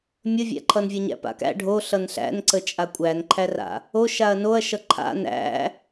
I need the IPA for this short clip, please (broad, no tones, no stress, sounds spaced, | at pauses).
mʲ ə vʲ æ̰ ǃʰ ʌ n vʲ ʌ ɲ æ̰ p a̰ k æ̰ ɖʱ o ɬ ʌ n ɬ æ̰ n ǀ ə t͡ʃʼ a kʷʼ æ n ǃʰ æ r a̰ | o ʃ a ɐ̯ n o ɐ̯ ʃ ʌ ǃʰ a̰ n æ̰